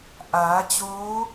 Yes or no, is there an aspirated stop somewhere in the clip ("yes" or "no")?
no